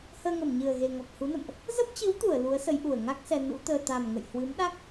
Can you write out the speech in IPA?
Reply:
həː˧ŋə˧˩mɲɨ˨˩ə̯ɣe˨˩ ŋɔ˨˩k̚ hu˨˦nə̰˧˨mʔ | zə˦˥p̚t͡ɕɨ˨˦wt̪u˧˩ə̯ lu˨˦ə̯sə˨˦jʔu˨˩ə̯ ŋa˦˥k̚sɛ˧ nṵ˧˥t̪əː˧ t̪a˨˩mŋə̰˧˨j hwɨ˨˦mɗa˦˥k̚

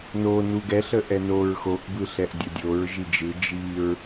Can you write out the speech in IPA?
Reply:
no nuɡɛɬə ʔɛnoɹ xoʔbɯɬɛʔ dʲodʲoɹ ʒid͡ʒɯ d͡ʒiɹ

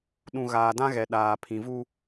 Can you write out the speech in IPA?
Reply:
ɗũ˨ ɣaː˨dã˦ɣɛ˨ ɗaː˨ pʰĩ˨vu˦

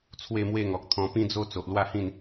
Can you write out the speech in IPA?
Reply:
t͡sʰwe˥˧mwe˥˧ŋɔ˨k̚ t̪ʰɔ̃˧pĩ˦d͡zo˦ t͡so˨ʔlwa˥˧hĩ˥˧n

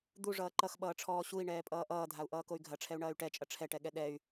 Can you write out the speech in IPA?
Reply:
d̪uʐʌː ǃʌxɓʌːʈ͡ʂʰɔː ɕui̯ɳɛːpʼʌː ʔʌːdʱau̯ʔʌːkoy̯ ɡʱɐʈ͡ʂʰɛu̯ɳɐːy̯ ʈɛt͡ʃʼɐ ʈ͡ʂʰɛʈɛɠɛ ɗɛy̯

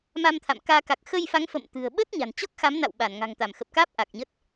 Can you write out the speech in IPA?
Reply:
ma˧mt̪ʰa̰˧˨mkaː˧ ka˨˩k̚xə˧jfa˨˦ŋ fə̰˧˨mt̪ɨ̤˨˩ə̯ɓə˦˥t̚ ɲa̤˨˩n t͡ɕɔ˦˥k̚xa˨˦mna̰˧˨w ɓa˧˩nŋa̤˨˩ŋ t̪a˧˩mxə˨˩p̚kaː˦˥p̚ ʔa˨˩k̚ɲə˦˥t̚

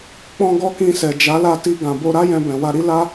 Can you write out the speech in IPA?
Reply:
k͡pɔ̃˦ɡɔ˦kĩ˧sɛ˨ d͡ʒa˨˦la˦˨ti˧ ɡã˨bo˧ɾa˦ jɛ̃˧bɛ̃˨wa˧ɾi˦ la˦

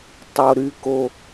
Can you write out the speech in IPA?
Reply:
tˤo˧ ɾy˧ko˧

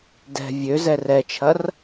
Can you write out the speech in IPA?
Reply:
dɛ̤ vʲøzɛr ɛt͡ʃʰɐr

